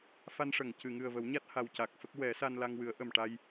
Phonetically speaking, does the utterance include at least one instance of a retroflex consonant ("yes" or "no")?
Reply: yes